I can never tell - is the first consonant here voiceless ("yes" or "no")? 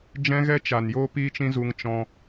no